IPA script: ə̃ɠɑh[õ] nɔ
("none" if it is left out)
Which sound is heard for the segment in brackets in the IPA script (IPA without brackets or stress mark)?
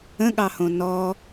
õ